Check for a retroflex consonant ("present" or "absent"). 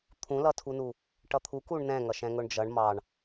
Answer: present